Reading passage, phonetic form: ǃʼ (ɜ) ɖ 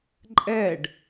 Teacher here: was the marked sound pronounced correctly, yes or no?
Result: no